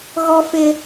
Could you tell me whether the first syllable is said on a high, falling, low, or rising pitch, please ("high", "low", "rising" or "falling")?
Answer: high